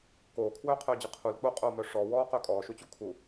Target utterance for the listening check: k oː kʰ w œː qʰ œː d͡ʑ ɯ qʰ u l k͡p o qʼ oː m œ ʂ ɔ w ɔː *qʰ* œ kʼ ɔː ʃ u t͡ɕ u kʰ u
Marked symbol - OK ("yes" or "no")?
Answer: no